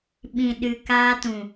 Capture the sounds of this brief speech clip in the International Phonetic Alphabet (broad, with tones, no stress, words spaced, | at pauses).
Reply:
ɓĩ˨ɗɨ˨kaː˦tũ˨